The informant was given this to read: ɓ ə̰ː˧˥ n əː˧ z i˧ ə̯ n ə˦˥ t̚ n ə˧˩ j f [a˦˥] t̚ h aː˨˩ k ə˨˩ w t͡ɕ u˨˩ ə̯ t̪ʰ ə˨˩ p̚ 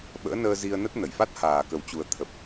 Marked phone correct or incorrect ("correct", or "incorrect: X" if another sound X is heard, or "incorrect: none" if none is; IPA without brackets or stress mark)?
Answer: correct